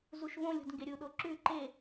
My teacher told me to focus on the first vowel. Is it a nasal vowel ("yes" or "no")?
no